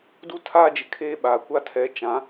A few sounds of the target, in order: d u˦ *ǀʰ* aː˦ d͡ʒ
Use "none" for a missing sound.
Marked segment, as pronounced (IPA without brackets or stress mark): tʰ